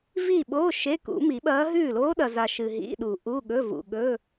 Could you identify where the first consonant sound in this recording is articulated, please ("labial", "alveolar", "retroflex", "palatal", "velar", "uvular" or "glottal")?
labial